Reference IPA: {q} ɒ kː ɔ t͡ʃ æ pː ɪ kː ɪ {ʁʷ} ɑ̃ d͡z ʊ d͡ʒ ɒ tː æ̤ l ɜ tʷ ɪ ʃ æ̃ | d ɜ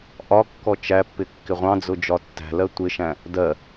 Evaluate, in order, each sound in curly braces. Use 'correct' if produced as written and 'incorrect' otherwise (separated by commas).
incorrect, correct